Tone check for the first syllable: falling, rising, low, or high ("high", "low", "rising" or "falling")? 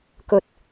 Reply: low